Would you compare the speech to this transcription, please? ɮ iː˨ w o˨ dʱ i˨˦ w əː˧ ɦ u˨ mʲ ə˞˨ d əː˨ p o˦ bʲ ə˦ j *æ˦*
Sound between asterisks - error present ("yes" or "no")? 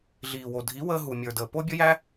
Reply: no